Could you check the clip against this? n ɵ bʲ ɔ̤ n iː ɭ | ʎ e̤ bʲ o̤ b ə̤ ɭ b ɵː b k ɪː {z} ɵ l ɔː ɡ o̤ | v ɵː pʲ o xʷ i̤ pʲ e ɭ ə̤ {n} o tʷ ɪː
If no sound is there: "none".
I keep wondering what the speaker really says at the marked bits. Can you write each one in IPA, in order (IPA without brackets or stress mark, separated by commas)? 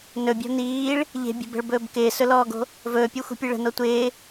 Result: s, n